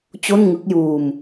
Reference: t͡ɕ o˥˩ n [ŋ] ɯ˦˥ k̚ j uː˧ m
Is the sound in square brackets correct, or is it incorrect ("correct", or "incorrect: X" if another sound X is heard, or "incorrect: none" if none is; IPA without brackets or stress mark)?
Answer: correct